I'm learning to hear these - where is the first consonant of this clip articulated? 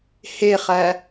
throat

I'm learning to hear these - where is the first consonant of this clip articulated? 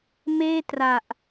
lips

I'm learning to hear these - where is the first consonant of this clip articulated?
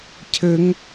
palate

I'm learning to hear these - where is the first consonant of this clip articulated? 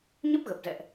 palate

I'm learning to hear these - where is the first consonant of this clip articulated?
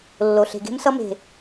tongue tip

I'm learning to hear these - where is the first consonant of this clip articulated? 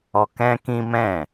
velum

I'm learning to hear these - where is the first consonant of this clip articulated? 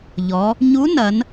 palate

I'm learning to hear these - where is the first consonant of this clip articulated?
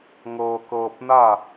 velum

